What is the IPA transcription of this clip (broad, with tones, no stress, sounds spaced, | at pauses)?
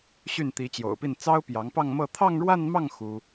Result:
ɕ y˥˩ n t̪ i˧˥ t͡ɕ j o̰˨˩ ʊ̯ p i˥˩ n t͡s ɑ˥ ʊ̯ p j ɑ˧˥ ŋ p ɑ˥˧ ŋ m ɤ˥˧ t̪ʰ ɑ˥˧ ŋ ɻ w a˥˧ n m ɑ˥˩ ŋ x u˥